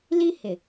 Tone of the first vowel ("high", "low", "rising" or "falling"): high